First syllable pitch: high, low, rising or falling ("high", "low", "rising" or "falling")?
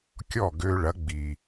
falling